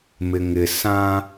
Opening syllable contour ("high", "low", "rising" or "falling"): low